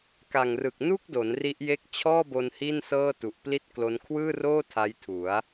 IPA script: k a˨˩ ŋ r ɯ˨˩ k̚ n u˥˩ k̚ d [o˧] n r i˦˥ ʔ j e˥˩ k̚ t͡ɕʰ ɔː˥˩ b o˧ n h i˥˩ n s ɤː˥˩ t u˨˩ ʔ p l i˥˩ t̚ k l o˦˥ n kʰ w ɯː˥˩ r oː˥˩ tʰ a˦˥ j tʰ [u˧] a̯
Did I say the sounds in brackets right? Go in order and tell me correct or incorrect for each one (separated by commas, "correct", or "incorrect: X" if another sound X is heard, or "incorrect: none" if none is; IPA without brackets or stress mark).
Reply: incorrect: o˩˦, incorrect: u˩˦